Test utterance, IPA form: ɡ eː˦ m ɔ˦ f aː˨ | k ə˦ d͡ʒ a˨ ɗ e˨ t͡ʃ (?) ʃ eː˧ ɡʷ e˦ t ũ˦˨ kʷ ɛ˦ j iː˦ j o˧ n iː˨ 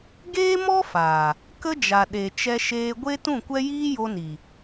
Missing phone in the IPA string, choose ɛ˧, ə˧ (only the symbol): ɛ˧